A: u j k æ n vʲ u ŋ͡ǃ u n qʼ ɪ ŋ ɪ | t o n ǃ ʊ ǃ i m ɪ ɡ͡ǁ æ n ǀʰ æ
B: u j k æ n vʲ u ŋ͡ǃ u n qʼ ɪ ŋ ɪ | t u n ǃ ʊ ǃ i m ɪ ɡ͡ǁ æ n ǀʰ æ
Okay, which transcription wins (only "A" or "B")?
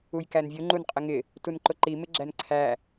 B